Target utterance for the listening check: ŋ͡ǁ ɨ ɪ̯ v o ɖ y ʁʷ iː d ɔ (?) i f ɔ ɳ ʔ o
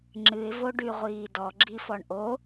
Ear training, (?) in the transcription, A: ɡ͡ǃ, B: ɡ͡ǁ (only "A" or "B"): B